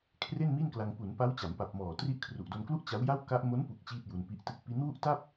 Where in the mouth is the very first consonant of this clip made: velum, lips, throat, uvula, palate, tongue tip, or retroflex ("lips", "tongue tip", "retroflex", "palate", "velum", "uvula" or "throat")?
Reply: velum